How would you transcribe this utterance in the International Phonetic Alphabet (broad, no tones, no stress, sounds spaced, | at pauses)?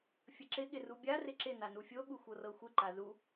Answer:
fʲ ə ǁ ɪ ɠ ɪ r u bʲ a r ɪ ǁ ɪ n a n u fʲ o ɠ u xʷ ɤ r ɤ xʷ ɪ ǃ a z u